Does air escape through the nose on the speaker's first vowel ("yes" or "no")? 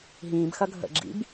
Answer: yes